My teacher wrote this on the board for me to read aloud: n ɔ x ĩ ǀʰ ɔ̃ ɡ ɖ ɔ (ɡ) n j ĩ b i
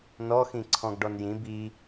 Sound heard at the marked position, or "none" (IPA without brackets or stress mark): none